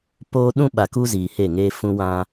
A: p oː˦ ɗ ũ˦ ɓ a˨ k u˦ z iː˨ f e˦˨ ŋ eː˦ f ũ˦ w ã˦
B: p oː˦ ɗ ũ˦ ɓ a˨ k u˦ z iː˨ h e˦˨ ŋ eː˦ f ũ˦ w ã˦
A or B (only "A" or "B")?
B